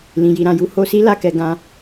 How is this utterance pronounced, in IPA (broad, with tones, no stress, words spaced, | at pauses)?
lĩ˨ji˨ ɾã˨ju˧ ho˧si˦ la˧kɛ˧ ɡã˧